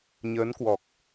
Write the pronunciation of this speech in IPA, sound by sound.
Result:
ɲ əː˨˦ n k w ɔ˨˩ k̚

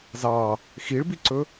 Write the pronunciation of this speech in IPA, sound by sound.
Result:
z ɑ | x i ɭ b i ǀ ɵ

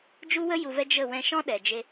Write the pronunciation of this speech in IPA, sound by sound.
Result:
d͡ʒ u˦ w ə˦ j u˨ v ɛ˧ d͡ʒ ə˦˨ w ɛ̃˧ ʃ ɔ̃˦ ɗ ɛ˨ d͡ʒ e˧

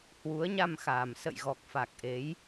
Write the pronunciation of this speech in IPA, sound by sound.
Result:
h w u˨˦ ə̯ ɲ a˧ m x aː˨˩ m s ə̰˧˨ j ɣ ɔ˨˩ k̚ f a˨˩ k̚ ʔ e˨˦ j

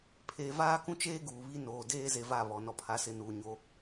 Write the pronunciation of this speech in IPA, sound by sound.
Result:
pʰ eː˨ v aː˦ k ũ˦ t͡ʃ eː˦ ɡ uː˨ β i˦ n oː˨ d eː˦ z e˨ v a˦˨ β ɔ˨ n ɔ˦ pʰ a˦ s ɪ˦ n uː˨ ɲ o˦

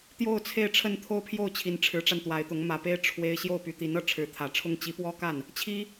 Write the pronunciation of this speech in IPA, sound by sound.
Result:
t̪ j o˥˧ ʊ̯ t͡sʰ e˥˧ ɪ̯ ʈ͡ʂʰ ə˥˧ n t̪ʰ o˥˧ ʊ̯ pʰ j o˥˩ ʊ̯ t͡ɕʰ i˧˥ n ʈ͡ʂʰ ɻ̩˧˥ ʈ͡ʂ a˧ n t̪ w a˧˥ ɪ̯ t̪ ʊ˧˥ ŋ m ä˨˩ p e˥ ɪ̯ ʈ͡ʂʰ w e˥ ɪ̯ ɕ j o˥˩ ʊ̯ p y˧˥ t̪ i˧˥ n ɤ˥˩ ʈ͡ʂʰ ɻ̩˧˥ t̪ʰ ä˨˩ ʈ͡ʂʰ ʊ˥ ŋ t͡ɕ i˧˥ p w ɔ˥ k a˥˩ n | t͡ɕʰ i˥

